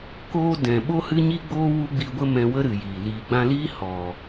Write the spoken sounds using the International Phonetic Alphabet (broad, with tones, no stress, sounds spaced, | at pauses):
k oː˧ d ɛ̃˨ ɓ o˦ h ɨ˦ ɲ i˦ ɡ͡b oː˦ w u˦ ɡ͡b i˧ ɡʷ ə˦ m ɛ̃˧ w ə˦ ɾ ɨ˨ j iː˨ l iː˨ ɡ͡b ã˧ l iː˦ h ɔ˨